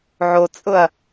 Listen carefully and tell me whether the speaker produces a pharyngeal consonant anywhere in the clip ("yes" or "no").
yes